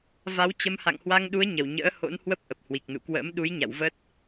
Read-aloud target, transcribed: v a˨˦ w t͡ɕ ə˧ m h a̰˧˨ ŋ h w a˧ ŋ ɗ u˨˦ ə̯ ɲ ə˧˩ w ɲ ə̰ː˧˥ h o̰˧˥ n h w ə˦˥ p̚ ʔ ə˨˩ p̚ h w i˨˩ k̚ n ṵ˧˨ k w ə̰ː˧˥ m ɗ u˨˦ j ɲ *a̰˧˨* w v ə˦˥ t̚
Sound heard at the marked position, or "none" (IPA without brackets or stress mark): a̰˧˨